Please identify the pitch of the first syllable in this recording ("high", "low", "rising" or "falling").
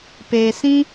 low